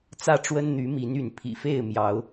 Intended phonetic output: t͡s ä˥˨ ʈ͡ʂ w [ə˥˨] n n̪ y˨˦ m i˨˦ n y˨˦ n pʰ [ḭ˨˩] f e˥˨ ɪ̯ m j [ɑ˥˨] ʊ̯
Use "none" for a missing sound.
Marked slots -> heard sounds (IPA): ə˦, ḭ˨˩, ɑ˨˦

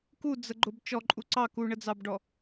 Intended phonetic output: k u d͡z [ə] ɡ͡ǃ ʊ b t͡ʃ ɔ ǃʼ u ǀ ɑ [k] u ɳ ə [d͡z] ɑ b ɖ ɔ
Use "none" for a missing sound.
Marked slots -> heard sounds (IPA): ə, k, d͡z

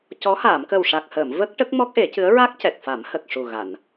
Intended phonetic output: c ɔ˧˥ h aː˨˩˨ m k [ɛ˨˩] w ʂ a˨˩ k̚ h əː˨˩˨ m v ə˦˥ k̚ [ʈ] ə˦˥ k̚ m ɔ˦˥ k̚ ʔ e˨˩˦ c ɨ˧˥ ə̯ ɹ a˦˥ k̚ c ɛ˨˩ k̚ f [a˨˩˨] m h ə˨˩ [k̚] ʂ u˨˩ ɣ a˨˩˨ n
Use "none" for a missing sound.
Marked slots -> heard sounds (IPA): ə˨˩, ʈ, a˨˩˦, k̚

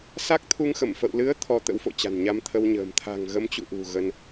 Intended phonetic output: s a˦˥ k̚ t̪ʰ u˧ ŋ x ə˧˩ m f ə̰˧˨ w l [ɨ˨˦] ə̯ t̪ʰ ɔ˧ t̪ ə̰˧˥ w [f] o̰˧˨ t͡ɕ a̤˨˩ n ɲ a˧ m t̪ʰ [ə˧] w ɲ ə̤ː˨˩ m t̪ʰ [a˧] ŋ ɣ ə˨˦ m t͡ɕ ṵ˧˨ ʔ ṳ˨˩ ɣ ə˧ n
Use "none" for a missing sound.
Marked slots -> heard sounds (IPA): ɨ˨˦, f, ə˧, a̤˨˩

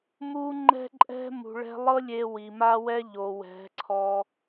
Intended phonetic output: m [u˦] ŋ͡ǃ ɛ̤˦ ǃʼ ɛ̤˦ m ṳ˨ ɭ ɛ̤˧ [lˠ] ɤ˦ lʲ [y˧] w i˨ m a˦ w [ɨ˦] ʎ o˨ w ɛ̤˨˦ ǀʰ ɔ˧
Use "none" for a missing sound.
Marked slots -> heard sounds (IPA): u˦, lˠ, e˧, ɛ˦

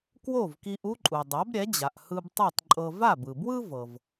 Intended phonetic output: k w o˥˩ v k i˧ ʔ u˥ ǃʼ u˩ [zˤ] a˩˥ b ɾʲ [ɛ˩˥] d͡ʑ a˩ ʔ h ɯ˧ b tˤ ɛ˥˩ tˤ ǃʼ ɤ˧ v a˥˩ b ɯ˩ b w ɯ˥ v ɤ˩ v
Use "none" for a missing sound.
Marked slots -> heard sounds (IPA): dˤ, ɛ˩˥

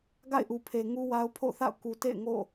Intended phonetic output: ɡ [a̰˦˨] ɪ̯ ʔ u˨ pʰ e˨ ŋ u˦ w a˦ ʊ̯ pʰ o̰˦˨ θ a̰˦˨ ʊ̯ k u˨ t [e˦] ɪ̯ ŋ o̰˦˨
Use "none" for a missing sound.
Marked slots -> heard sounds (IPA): a̰˦˨, ḛ˦˨

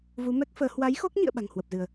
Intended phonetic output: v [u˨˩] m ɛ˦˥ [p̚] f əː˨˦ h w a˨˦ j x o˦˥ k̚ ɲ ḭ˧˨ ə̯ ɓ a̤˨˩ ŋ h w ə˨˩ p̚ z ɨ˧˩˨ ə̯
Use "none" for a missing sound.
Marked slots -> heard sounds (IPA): u˨˦, k̚

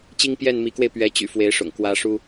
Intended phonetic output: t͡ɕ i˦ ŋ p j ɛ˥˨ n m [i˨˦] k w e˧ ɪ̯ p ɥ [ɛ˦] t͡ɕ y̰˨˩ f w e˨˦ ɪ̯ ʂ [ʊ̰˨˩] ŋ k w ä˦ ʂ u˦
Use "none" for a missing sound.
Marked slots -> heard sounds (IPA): i˨˦, ɛ˨˦, ʊ̰˨˩

